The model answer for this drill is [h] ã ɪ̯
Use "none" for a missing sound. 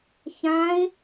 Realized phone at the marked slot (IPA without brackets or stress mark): ç